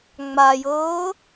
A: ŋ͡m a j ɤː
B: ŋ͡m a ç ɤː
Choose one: A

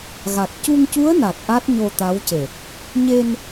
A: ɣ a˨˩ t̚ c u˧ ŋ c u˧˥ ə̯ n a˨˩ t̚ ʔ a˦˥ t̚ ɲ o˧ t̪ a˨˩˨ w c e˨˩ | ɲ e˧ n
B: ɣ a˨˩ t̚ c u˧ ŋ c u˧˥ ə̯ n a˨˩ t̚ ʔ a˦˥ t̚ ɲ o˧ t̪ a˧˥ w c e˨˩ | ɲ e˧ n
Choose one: B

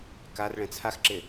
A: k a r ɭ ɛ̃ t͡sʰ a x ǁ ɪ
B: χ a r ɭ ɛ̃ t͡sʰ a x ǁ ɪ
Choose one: A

